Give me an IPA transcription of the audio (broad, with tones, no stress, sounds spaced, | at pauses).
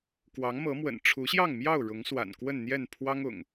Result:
k w ɑ˨˦ ŋ m ɤ˨˦ m w ə̰˨˩ n ʈ͡ʂʰ u˨˦ ɕ j ɑ˥˨ ŋ m j ɑ˥˨ ʊ̯ ɻ ʊ˨˦ ŋ s w a̰˨˩ n k w ə˥˨ n n̪ j ɛ˥˨ n pʰ w ɑ˦ ŋ ʊ̰˨˩ ŋ